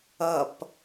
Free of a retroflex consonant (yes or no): yes